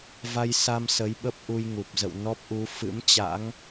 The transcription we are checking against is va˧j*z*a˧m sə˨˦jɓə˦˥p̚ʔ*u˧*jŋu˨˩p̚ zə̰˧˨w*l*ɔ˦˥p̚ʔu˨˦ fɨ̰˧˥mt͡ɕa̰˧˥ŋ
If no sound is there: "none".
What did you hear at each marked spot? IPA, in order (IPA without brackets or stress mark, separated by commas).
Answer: s, u˧, n